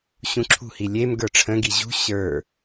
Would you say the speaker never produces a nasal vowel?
no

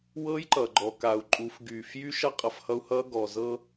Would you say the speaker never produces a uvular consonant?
no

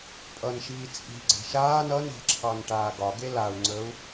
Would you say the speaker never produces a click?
no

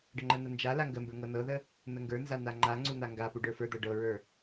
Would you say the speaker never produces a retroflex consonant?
no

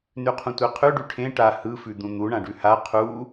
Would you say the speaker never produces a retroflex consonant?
no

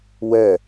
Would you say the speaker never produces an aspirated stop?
yes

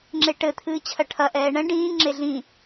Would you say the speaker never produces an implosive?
yes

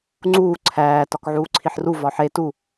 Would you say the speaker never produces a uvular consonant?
yes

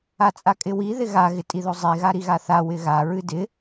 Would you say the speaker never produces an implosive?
yes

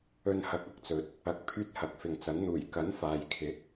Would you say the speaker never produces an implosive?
yes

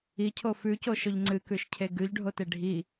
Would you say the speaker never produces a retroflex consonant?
no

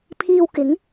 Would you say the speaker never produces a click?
yes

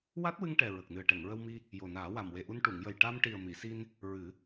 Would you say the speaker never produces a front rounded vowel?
yes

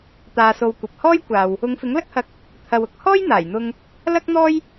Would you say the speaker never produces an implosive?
yes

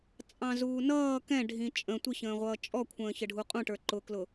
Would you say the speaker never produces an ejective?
no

